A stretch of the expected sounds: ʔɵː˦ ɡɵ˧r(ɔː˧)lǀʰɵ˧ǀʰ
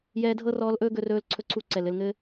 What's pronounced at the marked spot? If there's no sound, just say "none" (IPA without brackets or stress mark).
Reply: ɵː˧